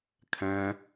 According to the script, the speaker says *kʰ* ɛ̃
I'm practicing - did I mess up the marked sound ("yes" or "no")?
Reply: no